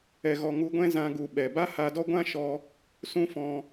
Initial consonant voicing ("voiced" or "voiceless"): voiced